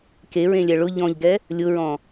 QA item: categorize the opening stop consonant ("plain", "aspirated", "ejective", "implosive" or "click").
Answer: plain